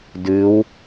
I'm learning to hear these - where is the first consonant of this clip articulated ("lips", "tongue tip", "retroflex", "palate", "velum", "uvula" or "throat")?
tongue tip